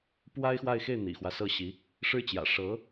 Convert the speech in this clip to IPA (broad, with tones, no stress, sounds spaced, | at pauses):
p w a˥ ɪ̯ x w a˥˧ ɪ̯ x e˥˩ ɪ̯ n̪ ḭ˨˩ x w ä˦ s ɤ˥˩ ɕ i˧˥ | ʂ ɻ̩˥ t͡ɕ j ä̰˨˩ ʂ ɤ˧˥